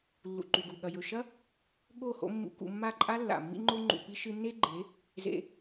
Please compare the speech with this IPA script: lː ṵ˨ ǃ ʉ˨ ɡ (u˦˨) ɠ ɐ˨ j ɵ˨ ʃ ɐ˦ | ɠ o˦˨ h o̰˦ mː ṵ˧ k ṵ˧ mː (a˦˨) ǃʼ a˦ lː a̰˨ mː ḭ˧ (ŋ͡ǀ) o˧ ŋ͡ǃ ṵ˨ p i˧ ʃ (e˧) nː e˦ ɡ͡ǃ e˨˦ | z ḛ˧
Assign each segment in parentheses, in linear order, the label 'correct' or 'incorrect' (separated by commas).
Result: incorrect, correct, incorrect, incorrect